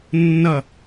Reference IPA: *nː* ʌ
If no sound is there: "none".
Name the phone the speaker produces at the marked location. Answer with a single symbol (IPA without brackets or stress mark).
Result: nː